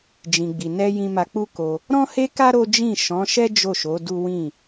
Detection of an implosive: absent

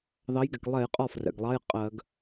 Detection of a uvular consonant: present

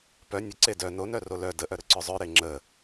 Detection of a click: present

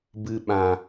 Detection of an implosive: present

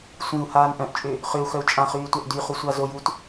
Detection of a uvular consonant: present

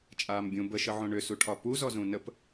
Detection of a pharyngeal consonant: present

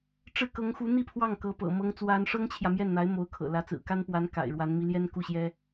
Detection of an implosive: absent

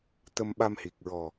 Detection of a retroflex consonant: absent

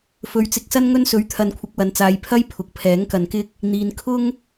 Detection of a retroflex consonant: absent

